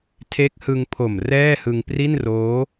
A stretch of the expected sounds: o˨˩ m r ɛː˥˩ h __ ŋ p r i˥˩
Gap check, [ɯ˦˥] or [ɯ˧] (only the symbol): ɯ˧